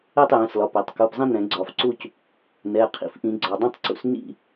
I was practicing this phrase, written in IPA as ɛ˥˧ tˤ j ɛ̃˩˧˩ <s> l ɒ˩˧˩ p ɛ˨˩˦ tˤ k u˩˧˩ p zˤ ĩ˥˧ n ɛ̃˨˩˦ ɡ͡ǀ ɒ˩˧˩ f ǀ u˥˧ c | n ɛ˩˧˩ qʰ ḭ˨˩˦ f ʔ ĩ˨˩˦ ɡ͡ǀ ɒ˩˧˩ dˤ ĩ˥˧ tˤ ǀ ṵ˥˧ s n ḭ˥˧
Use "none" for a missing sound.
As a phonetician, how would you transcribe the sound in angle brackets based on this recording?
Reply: s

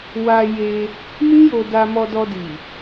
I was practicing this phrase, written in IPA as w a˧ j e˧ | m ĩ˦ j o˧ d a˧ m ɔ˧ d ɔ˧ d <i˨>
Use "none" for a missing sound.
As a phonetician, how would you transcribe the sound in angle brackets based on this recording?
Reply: i˨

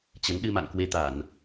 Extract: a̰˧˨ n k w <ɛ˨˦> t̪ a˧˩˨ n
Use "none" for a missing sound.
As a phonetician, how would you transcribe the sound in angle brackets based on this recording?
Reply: e˨˦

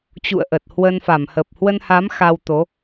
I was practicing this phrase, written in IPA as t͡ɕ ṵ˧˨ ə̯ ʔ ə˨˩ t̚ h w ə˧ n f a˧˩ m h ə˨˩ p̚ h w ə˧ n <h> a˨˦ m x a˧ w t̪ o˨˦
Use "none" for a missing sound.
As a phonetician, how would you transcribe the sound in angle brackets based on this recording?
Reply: h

